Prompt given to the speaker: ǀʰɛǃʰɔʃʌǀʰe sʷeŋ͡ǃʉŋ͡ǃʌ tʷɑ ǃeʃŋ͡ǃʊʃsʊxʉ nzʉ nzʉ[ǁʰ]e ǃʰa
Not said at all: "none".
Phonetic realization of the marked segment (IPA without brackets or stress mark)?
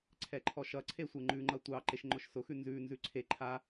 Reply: ǀʰ